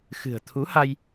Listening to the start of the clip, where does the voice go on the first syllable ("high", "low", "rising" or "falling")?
low